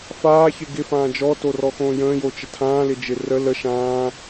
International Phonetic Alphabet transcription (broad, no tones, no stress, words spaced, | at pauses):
faːçɪ ɡɪfãː d͡ʒɔtorɔxõː jə̃ːjot͡ʃə tʰãːlɪd͡ʒɪ rə lə ʃãː